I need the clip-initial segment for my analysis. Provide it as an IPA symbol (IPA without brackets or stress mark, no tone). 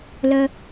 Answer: l